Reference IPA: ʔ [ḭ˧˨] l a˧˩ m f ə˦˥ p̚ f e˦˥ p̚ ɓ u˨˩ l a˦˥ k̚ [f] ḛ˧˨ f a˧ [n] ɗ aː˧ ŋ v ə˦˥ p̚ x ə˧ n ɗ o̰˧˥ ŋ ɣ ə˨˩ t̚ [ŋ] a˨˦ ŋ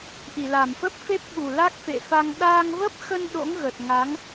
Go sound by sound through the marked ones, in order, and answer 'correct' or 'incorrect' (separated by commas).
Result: incorrect, correct, incorrect, correct